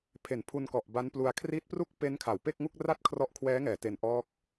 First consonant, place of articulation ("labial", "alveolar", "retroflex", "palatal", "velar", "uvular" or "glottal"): labial